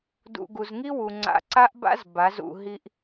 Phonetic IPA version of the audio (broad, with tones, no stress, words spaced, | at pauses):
dṵ˧ ɡu˨zŋi˦wu˨ŋ͡ǀa̰˨˦ ǀa˦ʔba̰˦z ba˨˦zṵ˧ɦi˦ʔ